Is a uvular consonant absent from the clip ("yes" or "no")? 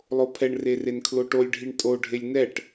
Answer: yes